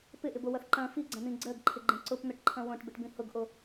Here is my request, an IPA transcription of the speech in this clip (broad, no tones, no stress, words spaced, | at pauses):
pɪʔɪbowɐθ ǃɐ̃ fiɡ͡ǀɐ̃n̪ĩ ɡ͡ǀɜɡǃʰɪɡ͡ǃẽ ǀʊpn̪ʊʈǃʰɐ̃ wõʈbɪʈbĩ hʊɡʔo